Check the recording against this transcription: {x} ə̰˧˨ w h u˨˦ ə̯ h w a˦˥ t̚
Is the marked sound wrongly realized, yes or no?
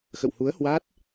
no